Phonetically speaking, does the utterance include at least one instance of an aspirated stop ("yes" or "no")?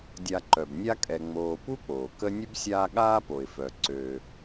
no